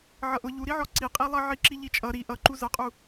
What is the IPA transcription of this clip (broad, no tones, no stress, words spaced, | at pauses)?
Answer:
ʕʌʔʊ ʎuɾiʕɔ ǀiqʼilˠʌ ʕiǁiʎit͡ʃʼʌ ɾi ʔʌǃu zʌqʼu